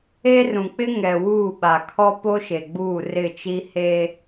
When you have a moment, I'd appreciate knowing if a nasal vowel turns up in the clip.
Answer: yes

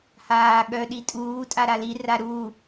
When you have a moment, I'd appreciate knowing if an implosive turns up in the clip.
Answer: yes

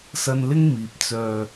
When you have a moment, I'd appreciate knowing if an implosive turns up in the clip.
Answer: no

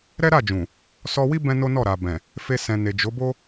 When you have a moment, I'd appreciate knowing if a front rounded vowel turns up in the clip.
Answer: no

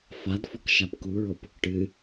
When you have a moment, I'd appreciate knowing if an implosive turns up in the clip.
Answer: no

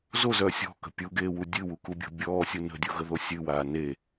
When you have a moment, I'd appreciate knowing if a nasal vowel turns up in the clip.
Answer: no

